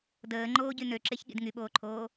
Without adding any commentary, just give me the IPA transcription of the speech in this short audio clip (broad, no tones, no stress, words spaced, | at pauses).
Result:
dəːŋ͡ǃoːɟy nøǁeçɠḭd ŋyɓoːǃʰoː